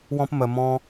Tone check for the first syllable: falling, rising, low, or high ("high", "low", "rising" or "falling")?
high